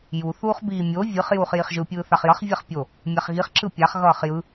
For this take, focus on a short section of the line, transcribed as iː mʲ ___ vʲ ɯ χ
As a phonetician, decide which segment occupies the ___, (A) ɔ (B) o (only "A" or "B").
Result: B